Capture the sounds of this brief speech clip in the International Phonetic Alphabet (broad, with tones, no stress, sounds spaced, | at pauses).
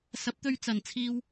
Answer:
s ɐ˨˥ p̚ t̪ ɵ˧ ɥ t͡s ɐ˨˩ n t͡sʰ iː˧ w